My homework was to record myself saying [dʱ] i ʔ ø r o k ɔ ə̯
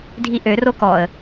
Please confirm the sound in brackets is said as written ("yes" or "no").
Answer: yes